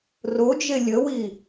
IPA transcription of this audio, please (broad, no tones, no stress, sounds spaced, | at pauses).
r o d͡ʒ e lʲ ə w i